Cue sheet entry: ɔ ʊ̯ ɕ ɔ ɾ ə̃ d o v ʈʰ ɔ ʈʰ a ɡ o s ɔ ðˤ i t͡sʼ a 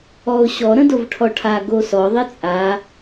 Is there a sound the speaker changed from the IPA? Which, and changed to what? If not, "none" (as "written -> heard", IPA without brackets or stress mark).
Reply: none